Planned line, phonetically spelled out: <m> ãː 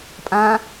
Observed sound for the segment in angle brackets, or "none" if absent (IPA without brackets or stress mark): pʼ